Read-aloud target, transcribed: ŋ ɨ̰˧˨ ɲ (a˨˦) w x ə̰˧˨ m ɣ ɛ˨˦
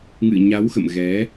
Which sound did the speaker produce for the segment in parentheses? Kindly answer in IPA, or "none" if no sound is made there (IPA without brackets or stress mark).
a˨˦